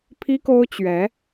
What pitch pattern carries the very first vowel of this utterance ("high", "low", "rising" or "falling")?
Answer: high